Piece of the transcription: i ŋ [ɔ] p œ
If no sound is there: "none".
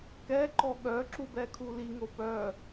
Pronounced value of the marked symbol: o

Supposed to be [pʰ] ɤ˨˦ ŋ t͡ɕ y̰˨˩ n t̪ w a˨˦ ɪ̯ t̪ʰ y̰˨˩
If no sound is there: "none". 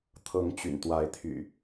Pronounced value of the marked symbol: t̪ʰ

